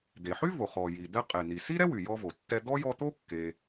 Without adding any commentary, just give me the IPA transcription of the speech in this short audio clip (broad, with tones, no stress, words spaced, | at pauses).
d̪e˩ħy˥vo˩ χɔ˩ji˩ d̪ɛ˦ qʼe˩n̪i˩si˥ɾɛ˥ wy˩jɔ˦vo˩tːɛ˦ d̪ɔ˥jɔ˦t̪o˥ kːe˨